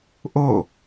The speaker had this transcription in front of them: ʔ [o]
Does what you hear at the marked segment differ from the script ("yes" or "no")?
no